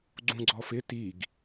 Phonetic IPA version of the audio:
ɡ͡ǀ ũ ɡ͡ǀ ɔ f ɪ t i ɡ

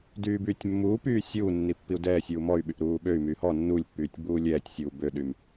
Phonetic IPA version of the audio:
d yː b yː tʲ mː uː p yː sʲ uː nː i pː i u̯ d ɛː sʲ uː m ɔ y̯ ɓ y ʔ ɾ uː ɓ ø y̯ m yː h ɔ nː u lʲ pː yː tʲ ɡ͡b uː lʲ ɛː tʲ sʲ uː b ø ɗ y m

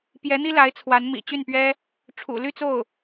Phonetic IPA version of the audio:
p j ɛ˧˥ n̪ i˥ l a˧˥ ɪ̯ t͡sʰ w a˧˥ n m ḭ˨˩ t͡ɕ y˥˩ n p ɥ ɛ˥ | ʈ͡ʂʰ ṵ˨˩ l y˥˧ t͡s o˥˩ ʊ̯

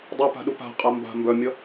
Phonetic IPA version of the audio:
dˤ ʌ p a̤ ɗ u p a̤ qʼ a m b a̤ m b œ mʲ ʌ

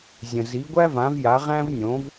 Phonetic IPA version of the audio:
zʲ ə̃˩ z i˩˥ ɡʷ æ˥ v ã˩˥ v j a˩˥ ʁ æ̃˥ v nʲ õ˩˥ v

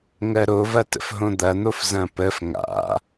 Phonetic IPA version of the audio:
ŋ ɜ ɾ o v ɐ t ə̰ f ɦ õ d̪ ɐ n̪ o f z ɐ̃ p ə f ŋ a̰

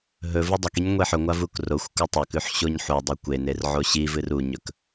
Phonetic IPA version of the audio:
ɦ ɵ v ɨ dˤ ɐ k i ɲ ŋʷ e ħ ɵ ŋʷ a v u k r o xʷ k u tˤ ɵ k ʉ ħ ɕ o ɲ ħ u dˤ ɨ kʷ e n e r ʕ o ɕ i v ɨ r u ɲ ɵ k

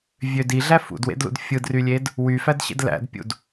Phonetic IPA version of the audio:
vʲ ø d i ɮ æ f ṵ d w ḛ d l ṵ d fʲ ɯ d r y lʲ e d | w y f æ d ɕ ḛ d l æ̰ d pʲ ṵ d

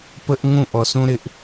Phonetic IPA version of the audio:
p ə˦ ʔ ŋ ũ˦˨ ʔ ɔ˨ s ũ˦ ɾ ɪ˧ ʔ

